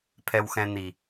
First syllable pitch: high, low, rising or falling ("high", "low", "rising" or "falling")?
low